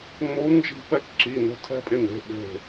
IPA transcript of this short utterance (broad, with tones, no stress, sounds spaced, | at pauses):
ŋ͡m o˨˥ u̯ n d͡ʒ i̤˧ p ɛ˧ k ǁ i˩˧˩ n o̤˧ tʰ ɛ̤˧ pʼ ɪ˧˩ n e̤˩˧˩ ɓ e̤˧˩